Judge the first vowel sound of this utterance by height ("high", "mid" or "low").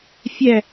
low